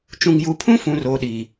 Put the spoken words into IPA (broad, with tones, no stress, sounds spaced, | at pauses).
t͡ʃ ũ˨ ŋ j u˨ pʰ ũ˦ f ũ˨ r oː˨ ɗ i˨